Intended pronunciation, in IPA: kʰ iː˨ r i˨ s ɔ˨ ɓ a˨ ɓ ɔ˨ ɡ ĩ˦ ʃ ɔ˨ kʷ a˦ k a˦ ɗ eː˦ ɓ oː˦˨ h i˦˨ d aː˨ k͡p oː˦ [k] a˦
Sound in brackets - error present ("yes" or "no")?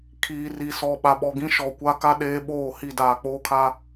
yes